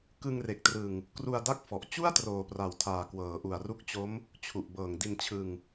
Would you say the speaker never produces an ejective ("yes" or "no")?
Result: yes